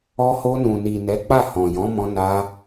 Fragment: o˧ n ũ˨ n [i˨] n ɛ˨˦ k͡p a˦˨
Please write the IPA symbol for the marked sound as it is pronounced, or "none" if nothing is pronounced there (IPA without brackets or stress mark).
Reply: i˨